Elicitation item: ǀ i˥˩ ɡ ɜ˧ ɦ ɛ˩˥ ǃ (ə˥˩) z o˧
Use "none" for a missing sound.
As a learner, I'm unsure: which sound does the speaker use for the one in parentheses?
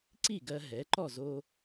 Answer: ɔ˥˩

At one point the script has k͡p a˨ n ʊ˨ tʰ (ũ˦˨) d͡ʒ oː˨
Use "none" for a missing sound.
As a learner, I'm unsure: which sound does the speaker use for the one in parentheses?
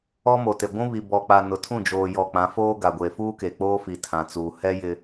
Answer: ũ˦˨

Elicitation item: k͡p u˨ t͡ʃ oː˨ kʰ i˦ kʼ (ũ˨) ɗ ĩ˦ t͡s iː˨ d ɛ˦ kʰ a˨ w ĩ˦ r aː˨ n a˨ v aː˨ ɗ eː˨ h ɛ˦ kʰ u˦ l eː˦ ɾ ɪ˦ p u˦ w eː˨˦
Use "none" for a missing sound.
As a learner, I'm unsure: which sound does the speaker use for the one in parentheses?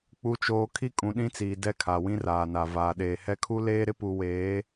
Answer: ũ˨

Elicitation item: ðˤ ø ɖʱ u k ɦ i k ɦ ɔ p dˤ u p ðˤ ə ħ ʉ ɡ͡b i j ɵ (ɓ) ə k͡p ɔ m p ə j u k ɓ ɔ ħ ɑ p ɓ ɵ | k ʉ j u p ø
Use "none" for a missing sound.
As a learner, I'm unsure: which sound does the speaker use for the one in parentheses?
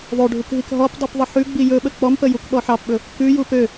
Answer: ɓ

